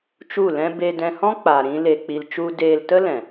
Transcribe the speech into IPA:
t͡ʃ u˦˨ l ɛ̃˦ b e˧ d ɛ̃˧ h ɔ̃˦ k͡p a˨ ɾ ĩ˧ l e˧ k͡p i˧ l t͡ʃ u˦ d eː˧ l t ə˦ l ɛ̃˨

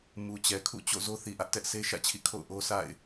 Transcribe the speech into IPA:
m u˨ t͡ɕ ɛ˨ kʰ ṵ˦˨ t͡ɕ o̰˦˨ z o˦ θ i˨ ʔ ä˦ ʔ t ɛ˦ ʔ sʰ e˦ ʃ ä̰˦˨ t͡ɕʰ ḭ˦˨ kʰ o̰˦˨ ʊ̯ ʔ o˦ s a̰˦˨ ɪ̯

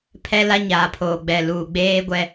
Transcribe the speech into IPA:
pʰ ɛ˦ l a˦ ɲ aː˨ pʰ oː˨ ɡ͡b ɛ˨ l uː˨ ɡ͡b eː˦ ɡʷ ɛ˦

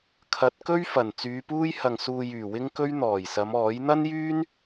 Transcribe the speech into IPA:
kʰ ɐ˨˥ t̚ k ɵ˥ ɥ f ɐ˨˩ n t͡s yː˨˧ p uː˥ j h ɐ˨ ŋ s uː˨ j yː˨˩ w ɪ˥ ŋ k ɵ˥ ɥ n̪ ɔː˨˩ j s ɐ˨˧ m ɔː˨˥ j n̪ ɐ˥ n j yː˥ n

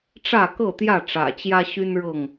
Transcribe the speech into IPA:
ʈ͡ʂ ä˥˨ k ɤ˥˨ t̪ j ä˥˨ ʈ͡ʂ ä̰˨˩ t͡ɕ j ä˦ ɕ y˦ n ɻ ɤ˥˨ ŋ

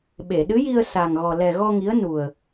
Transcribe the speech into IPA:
ɓ e˨˩˨ ɗ ɨ˧˥ j i˧ ə̯ s a˨˩ ŋ ɣ ɔ˨˩ l ɛ˨˩ ɣ ɔ˧ ŋ i˧˥ ə̯ n u˨˩ ə̯

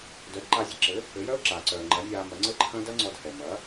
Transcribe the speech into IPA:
d œ˩˥ d ǃ a˧ zʲ ɘ˧ ǁ ɘ˩˥ | ɘ˩˥ j œ˥ ʊ̯ ǁ aː˩ ǀ œː˩ ŋ͡ǃ ɐ˩˥ nʲ aː˧ m ɐ˩˥ ŋ͡ǀ ɘ˥ ǃʰ ɐ̃˥ d ɐ˥ ŋ͡ǀ ɔ˧ d h ɛ˩ m ɐ˩˥

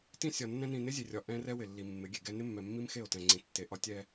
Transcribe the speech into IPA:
t ĩ˦ sʲ ɒ˨ nː ɛ̃˦ n ĩ˨ n ɪ˦ zʲ e˨ rʲ ɒ˨ ʔ ɛ̃˦ r ɛ˦ w ɪ˨ lː i˨ mː ɪ˨˦ ɡʲ e˨ ɡ ɛ˦ n ɪ˦ mː ɛ˨ mː i˦ m x e˦˨ o̯ t ɛ̃˨ ŋ͡ǀ ĩ˨ tː e˨ ʔ ɒ˦ tʲ ɛ˦

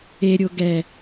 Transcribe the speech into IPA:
e ɾʲ o ɡ ɛ

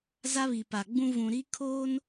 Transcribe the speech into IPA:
z a˦ β i˨ p a˨ ɡ͡b ũ˦ v ũ˨ ɾ i˦ kʰ oː˦ n

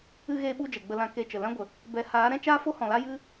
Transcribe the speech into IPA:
ɨ˧ ɣ eː˧ ɓ u˧ d͡ʒ ɛ˨ ɡ͡b ə˧ l ã˧ k e˧ t͡ʃ ə˨ l ã˦ ɡʷ ə˨ | b ɛ˨˦ h aː˨˦ ɾ ɛ̃˦ t͡ʃ aː˦ f o˦ h ɔ̃˨ l a˦ j ɨ˦

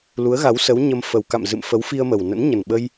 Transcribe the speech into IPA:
l u˨˦ ə̯ ɣ a˨˦ w s ə˨˦ w ɲ ə˧ m f ə˨˩ w k a̰˧˨ m z ɨ̰˧˨ m f ə˨˦ w f i˧ ə̯ m ə˨˩ w n ə̰˧˥ n ɲ ə˨˩ n ɓ ə˧ j

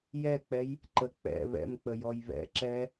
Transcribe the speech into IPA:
j ɛ k͡p ɛ j | ǃ ə k͡p ɛ̰ β ɛ̰ m k͡p ə j ɔ j β ɛ̰ ǁ ɛ

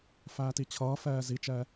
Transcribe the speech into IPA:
f æː t i t͡ɕʰ ʌː f ɛː z i t͡ʃ ɛ

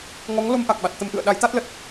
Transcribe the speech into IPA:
ŋ ɔ˨˦ ŋ l o˧ m ʔ a˨˩ k̚ ɓ a˨˩ t̚ t̪ ə˧ m ʔ ɨ̰˧˨ ə̯ ɗ a˨˦ j t̪ a˦˥ t̚ l ə˨˩ t̚

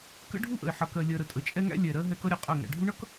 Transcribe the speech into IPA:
k ə̰˦ ɖʱ u˦ ʔ ə̰˨ ɪ̯ ħ ʌ˨ k ɜ˨ lʲ ɜ˨ ɾ ə˨ tʼ ə˨˦ t͡ʃʼ ɛ˦ ŋ æ̰˦ lʲ ɛ˨ ɾ ɜ˦ ɦ ɛ˦ k ʌ˦ ɾʲ ɛ˨ qʼ ɜ˦˨ ŋ æ̰˨ ɖʱ u˦ ɳ ʌ˦ k

